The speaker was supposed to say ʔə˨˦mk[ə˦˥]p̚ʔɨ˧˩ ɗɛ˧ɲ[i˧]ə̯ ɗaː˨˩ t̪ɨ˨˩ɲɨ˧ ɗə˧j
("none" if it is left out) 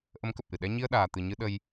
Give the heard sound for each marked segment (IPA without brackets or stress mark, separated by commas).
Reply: ə˨˩, i˧